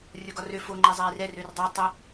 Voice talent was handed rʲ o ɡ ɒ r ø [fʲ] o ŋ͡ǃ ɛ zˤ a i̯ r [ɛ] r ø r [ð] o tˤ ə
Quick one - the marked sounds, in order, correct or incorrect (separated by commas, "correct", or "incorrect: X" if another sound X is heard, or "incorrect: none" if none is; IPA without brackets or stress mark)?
incorrect: f, correct, incorrect: dˤ